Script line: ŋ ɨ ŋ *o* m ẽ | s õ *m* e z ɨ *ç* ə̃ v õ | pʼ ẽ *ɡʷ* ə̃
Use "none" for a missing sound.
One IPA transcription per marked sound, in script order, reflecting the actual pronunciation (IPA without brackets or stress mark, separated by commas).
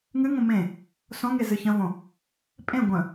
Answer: õ, ŋ, ç, ɡʷ